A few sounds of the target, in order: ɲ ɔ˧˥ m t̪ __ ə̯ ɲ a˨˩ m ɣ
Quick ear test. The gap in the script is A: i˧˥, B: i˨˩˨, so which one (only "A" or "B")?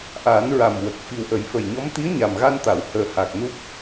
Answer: A